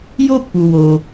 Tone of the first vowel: high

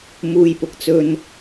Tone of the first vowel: high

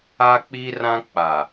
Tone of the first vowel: high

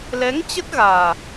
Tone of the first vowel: rising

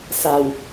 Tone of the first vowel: low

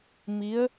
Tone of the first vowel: rising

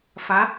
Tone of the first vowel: rising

